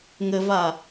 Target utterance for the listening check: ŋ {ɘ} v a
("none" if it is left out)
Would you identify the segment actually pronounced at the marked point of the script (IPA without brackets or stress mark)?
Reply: ɘ